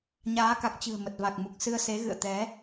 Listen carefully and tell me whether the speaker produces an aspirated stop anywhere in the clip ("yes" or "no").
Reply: no